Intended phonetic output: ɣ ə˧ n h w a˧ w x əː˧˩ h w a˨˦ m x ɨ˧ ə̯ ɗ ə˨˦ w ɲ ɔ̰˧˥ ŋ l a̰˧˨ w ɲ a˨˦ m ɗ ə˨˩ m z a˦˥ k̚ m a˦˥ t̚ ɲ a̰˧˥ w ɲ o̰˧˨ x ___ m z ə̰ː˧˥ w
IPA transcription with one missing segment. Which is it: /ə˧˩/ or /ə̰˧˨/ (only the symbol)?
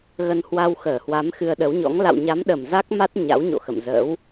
ə̰˧˨